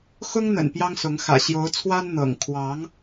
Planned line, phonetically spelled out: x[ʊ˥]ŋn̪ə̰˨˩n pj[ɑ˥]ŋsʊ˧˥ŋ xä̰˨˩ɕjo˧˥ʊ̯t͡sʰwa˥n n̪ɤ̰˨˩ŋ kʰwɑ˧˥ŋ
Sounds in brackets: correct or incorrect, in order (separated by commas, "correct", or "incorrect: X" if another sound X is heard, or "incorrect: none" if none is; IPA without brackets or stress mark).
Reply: correct, correct